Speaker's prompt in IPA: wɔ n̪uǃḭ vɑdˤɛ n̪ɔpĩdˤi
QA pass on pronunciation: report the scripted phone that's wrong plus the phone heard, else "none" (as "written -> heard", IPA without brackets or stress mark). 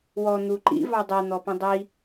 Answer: none